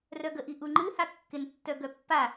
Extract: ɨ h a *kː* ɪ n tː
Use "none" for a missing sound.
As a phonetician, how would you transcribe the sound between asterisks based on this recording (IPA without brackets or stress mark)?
kː